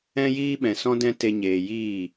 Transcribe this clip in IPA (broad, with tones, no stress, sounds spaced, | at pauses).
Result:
ɛ̃˦ j iː˦ ɓ ɛ̃˨ s ɔ̃˦ d ɛ̃˦ t e˧ ɲ eː˨ j iː˦˨